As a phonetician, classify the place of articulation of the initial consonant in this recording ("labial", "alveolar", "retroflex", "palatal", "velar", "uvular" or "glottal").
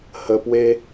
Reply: glottal